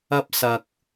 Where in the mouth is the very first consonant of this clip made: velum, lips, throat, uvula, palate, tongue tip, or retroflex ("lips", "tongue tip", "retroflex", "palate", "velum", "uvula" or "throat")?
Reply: lips